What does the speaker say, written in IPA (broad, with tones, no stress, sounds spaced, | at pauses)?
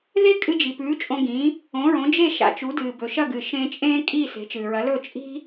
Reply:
ð e˥ kʼ ɨ˧ d͡ʒ i˩ p ʉː˩˥ t͡ʃʼ õ˧ ɡ ĩ˩˥ | õ˩˥ ɹ õ˩˥ d͡ʒ e˥˩ ʃ a̰˩˥ t͡ʃ u˩˥ d ɨː˩ b ɵ˩ ʃ ɐ˥˩ ɡ ɨ˩ ʃ ẽ˧ t͡ʃʼ ẽː˥ kʼ iː˥˩ s e̤˩˥ t͡ʃ ɨː˩ ɹ ɐ˩˥ l ɵ˥˩ t͡ʃʼ i̤˥